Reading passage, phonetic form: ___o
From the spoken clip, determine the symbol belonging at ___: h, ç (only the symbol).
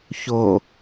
ç